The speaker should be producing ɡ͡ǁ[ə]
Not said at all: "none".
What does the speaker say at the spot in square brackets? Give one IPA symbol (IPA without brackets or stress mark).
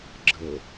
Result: ə